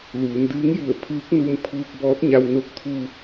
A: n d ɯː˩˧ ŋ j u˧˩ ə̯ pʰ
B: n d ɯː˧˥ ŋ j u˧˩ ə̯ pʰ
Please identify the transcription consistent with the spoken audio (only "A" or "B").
B